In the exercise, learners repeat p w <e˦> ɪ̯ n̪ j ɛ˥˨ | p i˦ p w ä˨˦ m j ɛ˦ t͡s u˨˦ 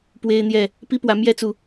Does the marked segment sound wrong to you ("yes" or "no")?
no